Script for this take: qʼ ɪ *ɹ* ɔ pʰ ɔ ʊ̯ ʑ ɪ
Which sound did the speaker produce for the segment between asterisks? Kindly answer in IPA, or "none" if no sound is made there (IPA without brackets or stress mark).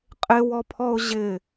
w